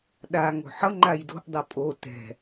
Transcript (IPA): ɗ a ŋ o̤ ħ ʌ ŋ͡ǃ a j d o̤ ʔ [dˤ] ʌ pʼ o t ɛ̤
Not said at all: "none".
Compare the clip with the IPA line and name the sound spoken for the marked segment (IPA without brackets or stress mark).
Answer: dˤ